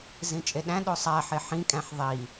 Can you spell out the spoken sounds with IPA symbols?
z ĩ t͡ʃʼ e ɗ æ̃ ɗ o sˤ æ ħ e ħ ĩ kʼ æ̃ ħ ðˤ i

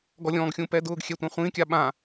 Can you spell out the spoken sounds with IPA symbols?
ɡ ɔ lʲ ɔ̃ː ɡ xʲ ũ p ɛ d ʊː ɡ xʲ ɛ tʷ ã χʷ ĩ kʲ a ɓ ã

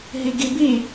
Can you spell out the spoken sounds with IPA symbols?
ɦ i ɡ i b i

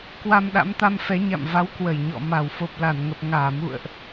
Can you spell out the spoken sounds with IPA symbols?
k w a˧ m ɗ a̰˧˥ m t̪ a˧ m f ɛ˨˦ ɲ a̰˧˨ m v a˨˦ w k w ə˧˩ j ɲ ɔ̰˧˨ m a˧˩ w f o˨˩ p̚ l a˧˩ n ŋ ə˨˩ p̚ ŋ aː˧˩ m ṵ˧˨ ə̯ ʔ

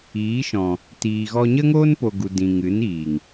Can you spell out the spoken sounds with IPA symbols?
iː˨˦ ʃ ɔ̃˨ | t iː˨ ɣ ɔ˧ ɲ ə˦ ŋ oː˦ n p o˨ ɡ u˨ d ĩ˨ ŋ ɨ˨˦ n iː˨ ŋ

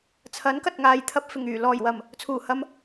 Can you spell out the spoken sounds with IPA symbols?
t͡sʰ ɐ˨˥ n k ɐ˨ t̚ ŋ aː˨ j t̪ʰ ɐ˧ p̚ f ɪ˨˩ ŋ yː˨˩ l ɔː˨˩ j w ɐ˨˩ m | t͡sʰ uː˨˩ h ɐ˧ m

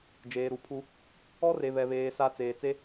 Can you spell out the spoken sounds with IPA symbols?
d͡ʒ eː˨ ɾ u˨ pʰ u˦ | ɔ˦ r e˨ β ɛ˨ β eː˨ s a˦ t͡s eː˨ t͡s e˦

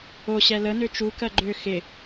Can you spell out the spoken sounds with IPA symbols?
o ɕ ɛ l ə n ø t͡ʃ u k ɜ ɡ͡ǃ ø x ɪ

